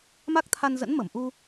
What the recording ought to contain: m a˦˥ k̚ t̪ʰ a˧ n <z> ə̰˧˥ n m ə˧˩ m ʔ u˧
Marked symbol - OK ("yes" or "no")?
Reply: yes